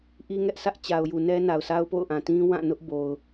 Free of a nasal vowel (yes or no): no